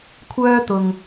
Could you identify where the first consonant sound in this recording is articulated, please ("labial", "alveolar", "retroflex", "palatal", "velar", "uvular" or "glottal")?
velar